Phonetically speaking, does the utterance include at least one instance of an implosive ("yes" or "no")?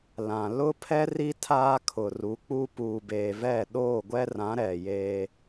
yes